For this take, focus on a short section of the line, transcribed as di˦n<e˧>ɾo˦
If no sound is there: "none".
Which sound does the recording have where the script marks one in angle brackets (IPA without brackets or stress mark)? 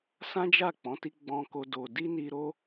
i˧